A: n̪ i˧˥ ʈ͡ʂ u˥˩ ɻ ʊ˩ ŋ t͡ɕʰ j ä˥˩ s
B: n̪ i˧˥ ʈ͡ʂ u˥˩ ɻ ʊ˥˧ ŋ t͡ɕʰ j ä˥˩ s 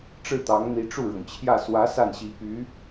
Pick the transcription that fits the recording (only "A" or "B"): A